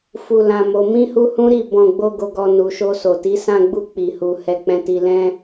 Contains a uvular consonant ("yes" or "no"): no